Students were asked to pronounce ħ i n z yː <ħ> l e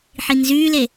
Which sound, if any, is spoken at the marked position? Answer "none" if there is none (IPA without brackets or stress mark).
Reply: none